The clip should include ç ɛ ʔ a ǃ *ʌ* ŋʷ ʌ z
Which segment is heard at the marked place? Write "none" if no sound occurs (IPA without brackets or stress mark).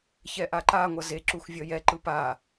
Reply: a